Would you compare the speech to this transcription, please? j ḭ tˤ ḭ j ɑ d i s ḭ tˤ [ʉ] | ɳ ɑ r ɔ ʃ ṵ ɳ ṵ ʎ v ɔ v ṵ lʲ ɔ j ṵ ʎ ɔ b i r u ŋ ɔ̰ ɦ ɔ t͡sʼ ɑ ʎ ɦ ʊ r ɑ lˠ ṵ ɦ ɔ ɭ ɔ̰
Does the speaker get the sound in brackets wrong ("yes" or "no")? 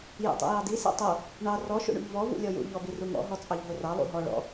yes